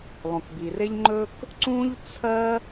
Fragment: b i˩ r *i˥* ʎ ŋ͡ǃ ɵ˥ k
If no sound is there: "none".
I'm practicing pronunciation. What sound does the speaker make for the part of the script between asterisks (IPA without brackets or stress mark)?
e˥